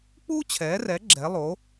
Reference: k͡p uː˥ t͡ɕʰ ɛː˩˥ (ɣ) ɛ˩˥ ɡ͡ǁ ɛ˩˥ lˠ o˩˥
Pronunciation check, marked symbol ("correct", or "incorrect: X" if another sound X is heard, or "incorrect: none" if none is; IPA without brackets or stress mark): incorrect: r